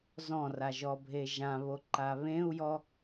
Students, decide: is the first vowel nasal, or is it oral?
nasal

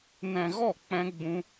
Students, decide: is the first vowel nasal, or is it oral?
nasal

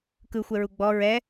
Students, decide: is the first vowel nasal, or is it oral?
oral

